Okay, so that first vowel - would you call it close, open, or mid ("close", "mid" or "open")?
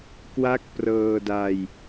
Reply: open